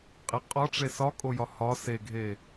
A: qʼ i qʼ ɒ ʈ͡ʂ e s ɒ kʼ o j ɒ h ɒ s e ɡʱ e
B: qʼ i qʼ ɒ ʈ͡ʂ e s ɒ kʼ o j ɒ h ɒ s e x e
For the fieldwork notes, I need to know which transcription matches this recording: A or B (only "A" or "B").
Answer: A